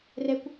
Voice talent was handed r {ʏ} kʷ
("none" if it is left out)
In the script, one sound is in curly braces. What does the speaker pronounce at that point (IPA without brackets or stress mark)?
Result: ɛ